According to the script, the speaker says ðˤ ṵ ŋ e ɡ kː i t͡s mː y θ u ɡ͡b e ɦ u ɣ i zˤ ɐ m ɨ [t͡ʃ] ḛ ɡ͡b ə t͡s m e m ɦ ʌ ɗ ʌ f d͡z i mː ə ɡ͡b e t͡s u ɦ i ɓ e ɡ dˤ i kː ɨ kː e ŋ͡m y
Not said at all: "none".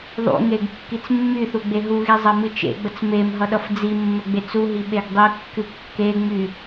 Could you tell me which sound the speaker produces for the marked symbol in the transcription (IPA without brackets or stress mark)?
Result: t͡ʃ